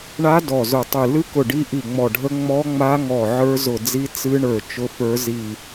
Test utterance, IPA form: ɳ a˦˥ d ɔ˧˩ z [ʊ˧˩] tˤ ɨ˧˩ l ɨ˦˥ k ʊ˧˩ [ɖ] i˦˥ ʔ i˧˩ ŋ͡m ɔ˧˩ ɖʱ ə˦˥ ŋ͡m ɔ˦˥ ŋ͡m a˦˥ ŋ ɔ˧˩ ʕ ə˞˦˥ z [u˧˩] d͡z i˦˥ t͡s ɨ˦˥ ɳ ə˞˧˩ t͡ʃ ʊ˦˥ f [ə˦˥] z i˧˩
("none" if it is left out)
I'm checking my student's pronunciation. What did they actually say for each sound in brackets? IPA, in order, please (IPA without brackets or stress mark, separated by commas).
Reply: ʊ˧˩, ɖ, ʊ˧˩, ə˞˦˥